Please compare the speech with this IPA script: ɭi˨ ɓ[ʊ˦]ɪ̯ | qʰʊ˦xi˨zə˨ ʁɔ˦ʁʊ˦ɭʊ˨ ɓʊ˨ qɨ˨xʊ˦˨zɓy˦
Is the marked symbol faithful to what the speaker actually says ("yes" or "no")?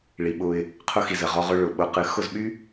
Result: yes